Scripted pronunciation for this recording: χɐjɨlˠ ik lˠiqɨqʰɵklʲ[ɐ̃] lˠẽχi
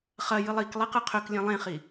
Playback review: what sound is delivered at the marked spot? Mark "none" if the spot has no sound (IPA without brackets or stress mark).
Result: ɐ̃